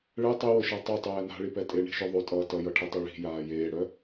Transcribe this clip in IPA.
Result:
ɭ ɛ tˤ i w ɵ ʃ a tˤ œ tˤ ɛː n a̤ ɭ i p ɛ tʼ e ɳ i̤ ʃ œ ðˤ ɵ tʼ ʌː t ʌ j ʌ ʈʰ ɵ tˤ œ ɭ i̤ j aː j eː ɽ œ

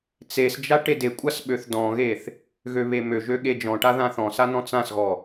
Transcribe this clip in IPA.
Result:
t͡s e s d͡ʒ a ʈ e d e kʷʼ a s ɓ ø θ d ɔ̃ ɣ e θ | ɣ ø β e m ø ʒ ø ɠ e d͡ʒ ɔ̃ ʈ a ð ã θ ɔ̃ s a n̪ ɔ̃ t͡s ã s ɣ ɔ

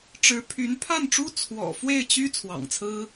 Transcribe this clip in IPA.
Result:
ʈ͡ʂ ɻ̩˧˥ pʰ y˧˥ n pʰ a˥˩ n ʈ͡ʂ u˥ t͡sʰ w ɔ̰˨˩ f w e˥˩ ɪ̯ t͡ɕ y˥ t͡sʰ w ɑ̰˨˩ ŋ t͡sʰ ɹ̩˥

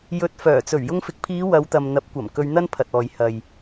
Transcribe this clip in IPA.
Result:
j ɵ˧ t̚ f œː˨˩ t͡s ɵ˨˩ ɥ j ʊ˧ ŋ f ɪ˨ k̚ pʰ iː˨˧ w ɐ˨˧ w t̪ ɐ˨ m n̪ ɐ˨˥ p̚ kʷ ɐ˨˩ m k ɵ˧ ɥ n̪ ɐ˥ n pʰ ɐ˨ t̚ ɔː˨ j h ɐ˨ j

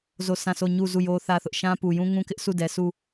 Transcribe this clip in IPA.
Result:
z o˦˨ s ã˦˨ sʰ o˦˨ ɲ u˦˨ z u˦˨ j o˦ θ ä˦ θ ʊ˦ ʔ ʃ ã˦ p u˨ j ũ˦ ŋ ũ˦ k ɪ˦ ʔ sʰ u˦˨ d ɛ˨ sʰ u˦˨

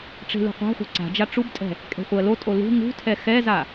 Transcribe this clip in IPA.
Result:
ʈ͡ʂ e̤ l ṳ qʷ a̤ χʷ ɛ̤ ǀ a̤ d͡ʒ a ʈ͡ʂ u b tʼ ɛ̤ | kʼ e̤ χʷ ɜ l o tʼ o l ṳ ŋ ṳ tʰ ɛ x ɛ z a

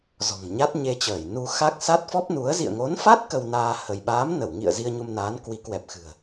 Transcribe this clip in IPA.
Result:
z ɔ̤˨˩ ŋ ɲ a˦˥ t̚ ɲ e˧ t͡ɕ əː˧˩ j n u˧ x a˦˥ k̚ s a˦˥ t̚ f ɔ˦˥ p̚ n u˨˦ ə̯ z ḭ˧˨ ə̯ ŋ o˨˦ n f a˦˥ t̚ k ə˧ w n aː˧ h ə˧ j ɓ aː˨˦ m n ə˧˩ w ŋ ḭ˧˨ ə̯ z i˧ ə̯ ɲ u˧ m n aː˨˦ n k w i˨˦ k w ɛ˨˩ p̚ x ɨ̤˨˩ ə̯

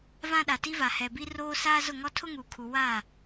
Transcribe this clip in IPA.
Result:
v ã˦ ɗ a˨ t i˦ v a˨ h ɛ˨ b i˦ r oː˦ s aː˦ z ʊ˦˨ ŋ ɔ˦ tʰ ʊ˦ ŋ uː˨ kʰ u˨ w a˦˨

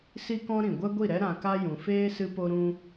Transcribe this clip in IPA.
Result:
s i˦ k ɔ̃˦ ɾ ĩ˨ ɡʷ ɛ˦ ɡʷ i˦˨ ɾ ɛ˦ ɾ ã˧ k a˦ j ũ˨ f eː˦ s ɨ˦ p o˦ ɾ ũ˦

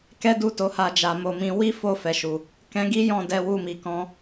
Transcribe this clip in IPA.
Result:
k ɛ˦ d u˦˨ t o˨˦ h a˧ d͡ʒ a˨ m o˨ m ĩ˧ w i˦ f o˦˨ f ɛ˨ ʃ u˨ | k ɛ̃˧ ɡ i˦ j ɔ̃˦˨ d ɛ˨˦ w u˦˨ m i˧ k ɔ̃˦

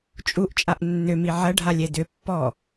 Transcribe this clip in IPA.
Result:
t͡ʃʼ u ʔ t͡ʃʼ a ʔ nː ʏ m i ʕ ɐ ɖʱ a lʲ e d ʏ pː ɔ

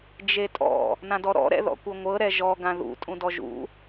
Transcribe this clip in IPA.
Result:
d͡ʒ e tʼ ɔ̰ | n ã d ɔ ɾ ɔ̰ ɾ ɛ̰ ð ɔ̰ kʷ ɤ ŋʷ ɤ ɾ ɛ ʒ ɔ ɡ ã ð ṵ tʼ ũ d ɔ ʒ ṵ

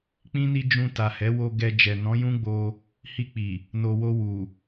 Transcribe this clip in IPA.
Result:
k͡p ĩ˦ n i˦ d͡ʒ ũ˧ t a˨ h ɛ˨˦ w o˧ ɡ ɛ˧ d͡ʒ ɛ˨ n ɔ̃˨˦ j ũ˦ ɡ͡b o˧ | h i˧ k͡p i˨ | n o˨ w o˧ w u˨

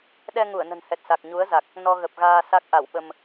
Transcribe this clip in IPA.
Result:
ɗ ɛ˧ ŋ u˧˩ ə̯ n ə̤˨˩ n h ɛ˨˩ t̚ s a˨˩ k̚ ɲ u˨˦ ə̯ z a˨˩ k̚ | n ɔ˧ ɣ ə˨˩ p̚ ɣ aː˧ s a˦˥ k̚ ʔ a˧˩ w ɓ ə˧ m

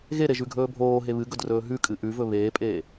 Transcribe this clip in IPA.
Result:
ɣ e ɾ e ʒ ʉ ɡʱ ɵː bʱ oː ɦ e β ɨ ɡ ɵ d r ɵː ɦ ʉ kʼ ɨ ʔ ʉ v ɵ β eː pʼ eː

